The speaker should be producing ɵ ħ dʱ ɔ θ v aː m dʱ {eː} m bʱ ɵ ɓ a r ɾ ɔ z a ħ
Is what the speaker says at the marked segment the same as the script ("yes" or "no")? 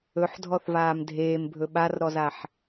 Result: yes